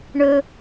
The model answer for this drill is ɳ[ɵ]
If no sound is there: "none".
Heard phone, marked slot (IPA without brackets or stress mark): ɵ